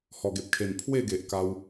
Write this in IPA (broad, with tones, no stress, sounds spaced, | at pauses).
h ɔ˨˩ ɡ e˨ p̚ kʰ e˨˩ n pʰ w e˥˧ ɡ e˨ ʔ k a˧ w